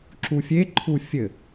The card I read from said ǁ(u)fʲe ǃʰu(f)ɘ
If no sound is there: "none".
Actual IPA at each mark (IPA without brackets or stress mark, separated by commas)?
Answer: u, fʲ